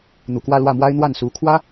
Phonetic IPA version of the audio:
n̪u˨˩kwä˥˧lwä˥˩mwa˥ɪ̯ n̪wa˥˩nsu˧˥kʰwä˥

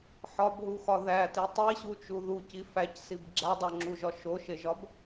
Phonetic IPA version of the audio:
ħɒbɦuxɒ ðæti tˤiɕut͡ʃu ðuci fæcsib ɡ͡ǁædˤoŋ͡ǁuʒɒ ʃoʃeʒɒb

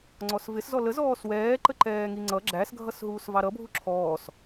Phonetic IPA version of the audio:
ŋ͡ǀɔsvɪs zɔləzɔːs wɛː ǃəǃɛːŋiŋ͡ǀʌ ɡ͡ǁæsɡʱʌsɦuːs vɑɾʌ bʱuǁʰɔːs

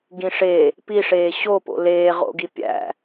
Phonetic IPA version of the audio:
ɡĩʂe | piʂeː ɕopo̰ leː ʁo̰ɡi pʲæ̰

